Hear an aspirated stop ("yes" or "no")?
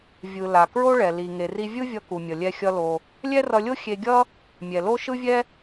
no